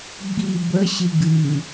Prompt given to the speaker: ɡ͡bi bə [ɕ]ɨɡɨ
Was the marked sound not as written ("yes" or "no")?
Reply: no